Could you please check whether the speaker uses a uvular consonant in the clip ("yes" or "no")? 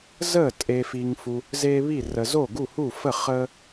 yes